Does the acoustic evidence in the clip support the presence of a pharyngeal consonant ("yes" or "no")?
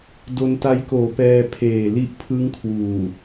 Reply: no